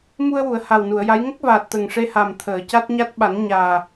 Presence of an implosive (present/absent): present